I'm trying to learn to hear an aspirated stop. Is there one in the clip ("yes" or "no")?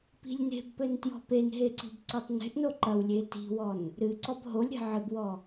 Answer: no